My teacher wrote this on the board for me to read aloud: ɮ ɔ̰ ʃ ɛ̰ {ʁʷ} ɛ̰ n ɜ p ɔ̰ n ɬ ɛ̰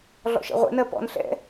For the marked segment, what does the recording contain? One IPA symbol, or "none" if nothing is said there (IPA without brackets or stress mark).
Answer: ʁʷ